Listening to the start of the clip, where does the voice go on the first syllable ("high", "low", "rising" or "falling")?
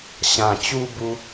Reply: low